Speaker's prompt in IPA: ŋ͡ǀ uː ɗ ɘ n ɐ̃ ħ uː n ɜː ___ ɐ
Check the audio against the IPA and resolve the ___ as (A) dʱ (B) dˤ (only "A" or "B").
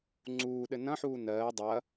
B